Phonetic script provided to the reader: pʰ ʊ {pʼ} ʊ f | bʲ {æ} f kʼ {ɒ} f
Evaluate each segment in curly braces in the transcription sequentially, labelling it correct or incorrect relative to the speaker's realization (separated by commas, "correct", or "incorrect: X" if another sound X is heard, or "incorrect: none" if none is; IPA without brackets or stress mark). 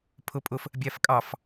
correct, correct, incorrect: ɑ